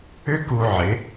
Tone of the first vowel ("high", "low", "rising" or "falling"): high